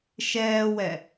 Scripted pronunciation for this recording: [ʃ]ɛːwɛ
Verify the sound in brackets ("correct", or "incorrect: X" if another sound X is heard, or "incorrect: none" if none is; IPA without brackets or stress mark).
correct